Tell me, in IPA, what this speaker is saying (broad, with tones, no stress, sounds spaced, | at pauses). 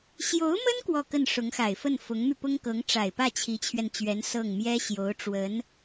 ɕ j o˧˥ ʊ̯ m ə˥ n k w ɔ˥˧ k ə˥˩ n ʂ ʊ˧˥ ŋ x a˨˩ ɪ̯ f ə˥˩ n f ʊ˧˥ ŋ m y˧ p ʊ˥ ŋ k ɤ˧˥ ŋ ʈ͡ʂ a˨˩ ɪ̯ p ä˥˩ t͡ɕʰ i˧˥ t͡ɕʰ ɥ ɛ˧ n t͡ɕ ɥ ɛ˧˥ n s ɤ˥˩ ŋ m j ɛ˥ ɕ j o˧˥ ʊ̯ ʈ͡ʂ w ə˧˥ n